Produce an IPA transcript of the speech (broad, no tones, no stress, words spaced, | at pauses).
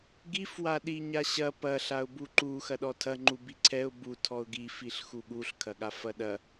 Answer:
ɡif waɗiɲaɕɐ pɐ ɬaʊ̯buǃu xɐɗɔtʰɐ ŋ͡ǃubiǀʰɛʊ̯ bu tʰɔʊ̯ɡi fiɬxuɠuɬ kʰɐɠafɐɗɐ